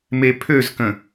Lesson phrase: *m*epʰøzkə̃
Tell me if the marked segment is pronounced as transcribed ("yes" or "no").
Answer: yes